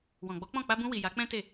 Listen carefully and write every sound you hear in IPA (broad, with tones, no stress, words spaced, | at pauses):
wɔ̃˨ɡ͡bɔ˨˦k͡pɔ̃˦˨ k͡pa˧bũ˧wi˨ ja˨˦ k͡pɛ̃˦te˦˨